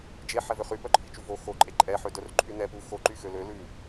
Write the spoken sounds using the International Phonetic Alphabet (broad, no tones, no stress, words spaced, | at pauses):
d͡ʒe ħɛvøχy pœǃʰit͡ʃuvo xoǃʼe ǃʼɛħødœr ǃʰynɛ pu xoǃy xølø lʉ